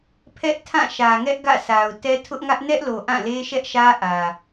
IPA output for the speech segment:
pʰ ɛ˦ ʔ tʰ ã˦˨ ʃ ä˨ ŋ ɛ˦ ʔ ɡ ä̰˦˨ sʰ a˨ ʊ̯ t ɛ˦ tʰ ʊ˦ ʔ ŋ ä˦ ʔ n ɛ˦ ʔ l o˨ ʔ ã˦˨ l e˦ ʃ ɛ˦ ʔ ʃ ä˦ ʔ ä˨

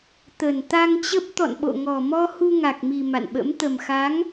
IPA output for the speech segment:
t̪ ə˨˩ n t̪ a˧ ŋ t͡ɕ ə˦˥ p̚ t̪ ɔ̰˧˨ n ɓ o̰˧˨ ŋ ɔ˨˩ m ɔ˧ h u˧ ŋ a˨˩ k̚ m i˨˩ m a̰˧˨ n ɓ ə̰˧˥ m t̪ ə˨˩ m x a˨˦ ŋ

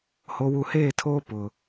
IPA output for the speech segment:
h o˨ w u˨ h eː˦˨ tʰ oː˦ p ʊ˨

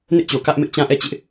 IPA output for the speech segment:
n ɪ˦ ʔ t͡ɕ o˨ k ä˦ ʔ m ɪ˦ ʔ t͡ɕ ã˦ ʔ ɛ˦˨ t͡ɕ ɪ˦ ʔ

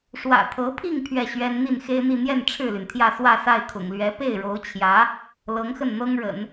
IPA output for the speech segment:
ʂ w ä̰˨˩ t̪ʰ ɤ˧˥ pʰ i˥˧ ŋ pʰ ɥ ɛ˥˩ ɕ ɥ ɛ˥ n n̪ i˥˩ n x e˥ ɪ̯ n̪ i˥˧ n̪ j ɛ˥˧ n ʈ͡ʂʰ ɻ̩˥˩ l y˩ n t̪ʰ j ä˥˧ s w ä˥˧ s a˥˩ ɪ̯ kʰ ʊ̰˨˩ ŋ l ɥ ɛ˧˥ p e˥˩ ɪ̯ ɻ o˧˥ ʊ̯ t͡ɕʰ j ä˧˥ | l ɤ˧˥ ŋ x ə˥˩ n n̪ ɤ˥ ŋ ɻ ə̰˨˩˦ n

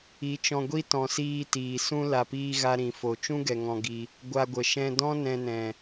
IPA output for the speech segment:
i˨˦ t͡ʃ ɔ̃˧ ɡʷ i˦ t ɔ̃˨ s iː˧ t iː˨ s ũ˦ l a˨ p iː˧ ɣ a˧ ɾ ĩ˨ f o˨ t͡ʃ ũ˦ ɡ ɛ˨ ŋ ɔ̃˧ ɡ i˧ | ɡʷ a˧ ɡʷ ə˨ ʃ ɛ̃˧ d ɔ̃˦ n ɛ̃˧ n ɛ̃˨

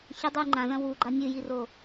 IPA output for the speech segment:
ç ɐ dˤ ʉ ŋ͡ǃ ã z ɐ̃ w u ɡ͡ǃ a nʲ ɨ j i r o

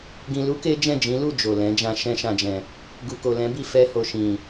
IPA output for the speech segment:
ɡ ĩ˧ l u˦ k e˦ d͡ʒ ɛ̃˦˨ d͡ʒ ĩ˨˦ l u˦˨ d͡ʒ o˨ l ɛ̃˨˦ d͡ʒ ã˧ ʃ ɛ̃˧ ʃ ã˨ d͡ʒ ɛ̃˨ | ɡ u˨ k o˨ l ɛ̃˨˦ b i˦˨ f ɛ˧ h o˨ ʃ ĩ˨

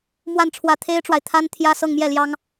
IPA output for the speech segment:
m w a˥˩ n ʈ͡ʂʰ w ä˧˥ t̪ʰ e˥ ɪ̯ ʈ͡ʂ w a˨ ɪ̯ t̪ʰ a˥ n t̪ʰ j ä˥˧ s ɤ˥˧ ŋ m j ɛ˥˩ l j ɑ˥ ŋ

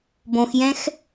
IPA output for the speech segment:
b õ x j ɛ̃ x

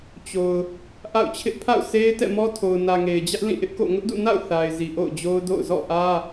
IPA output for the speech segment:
t͡ɕ o˨ ʊ̯ | ʔ a̰˦˨ ʊ̯ t͡ɕʰ ɪ˦ ʔ pʰ a̰˦˨ ʊ̯ sʰ e˦ ɪ̯ t ɛ̰˦˨ m ɔ˦ tʰ o˨ ʊ̯ n ä˨ ŋ e˨ ɪ̯ d͡ʑ ä˦ ʔ l ĩ˦˨ ʔ ɪ˦ ʔ k o̰˦˨ ŋ ʊ˦ ʔ d ṵ˦˨ n a̰˦˨ ʊ̯ θ a˨ ɪ̯ z i˨ ʔ o̰˦˨ ʊ̯ d͡ʑ o˦ ʊ̯ d o̰˦˨ ʊ̯ z ɔ̰˦˨ ʔ ä˦

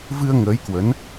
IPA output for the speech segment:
v ɨ˧ ə̯ ŋ əː˨˦ j k w ə˨˦ n

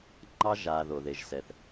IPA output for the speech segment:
ŋ͡ǃ ɑ˦ ʒ a˨ ð o˨ ð e˨ ʒ s ɛ˨ θ

